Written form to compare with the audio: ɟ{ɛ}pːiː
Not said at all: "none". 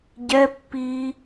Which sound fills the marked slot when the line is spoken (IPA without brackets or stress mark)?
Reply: ɛ